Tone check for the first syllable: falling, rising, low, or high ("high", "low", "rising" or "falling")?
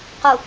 low